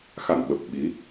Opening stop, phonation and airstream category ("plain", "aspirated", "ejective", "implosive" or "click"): implosive